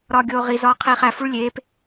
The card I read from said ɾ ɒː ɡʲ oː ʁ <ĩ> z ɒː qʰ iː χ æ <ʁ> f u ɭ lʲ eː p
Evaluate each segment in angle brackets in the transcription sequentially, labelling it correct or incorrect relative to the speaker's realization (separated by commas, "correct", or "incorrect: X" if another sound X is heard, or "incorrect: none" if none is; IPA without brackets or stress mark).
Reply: incorrect: i, incorrect: none